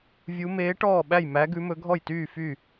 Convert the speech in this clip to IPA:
vʲ u˧˥ m eː˧˥ ʈ ɔː˥˨ ɓ æ˥˨ j m æ˧˥ ɡ ʉ˧˥ m ɵ˧˥ ɡʱ ɔ˥˨ j t yː˥˨ f y˥˨

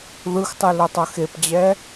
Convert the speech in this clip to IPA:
ð ɯ x tˤ ɯ l o tˤ ʌ x e p d͡ʑ ɛ

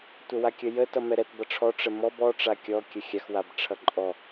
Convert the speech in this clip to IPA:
tʷ ə w a kʲ ə j ə t ʌ m ɛ ɾ ɛ t b ʌ ʈ͡ʂʰ ɔ ʈ͡ʂ ə m ɔ b ɔ ʈ͡ʂ a kʲ ɔ kʲ ə xʲ a x w a b ʈ͡ʂʰ ʌ ǃʼ ɔ

